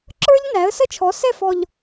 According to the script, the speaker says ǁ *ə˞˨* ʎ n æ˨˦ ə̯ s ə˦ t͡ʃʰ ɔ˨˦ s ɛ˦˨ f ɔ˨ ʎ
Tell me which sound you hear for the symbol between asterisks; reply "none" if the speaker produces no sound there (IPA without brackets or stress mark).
ə˞˦